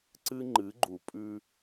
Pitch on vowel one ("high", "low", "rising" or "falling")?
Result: high